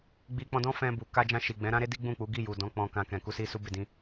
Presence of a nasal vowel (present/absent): present